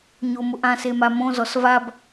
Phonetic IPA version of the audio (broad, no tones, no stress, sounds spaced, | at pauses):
ɲ o m ʊ ʔ ã s e m a m õ z ɔ s v a b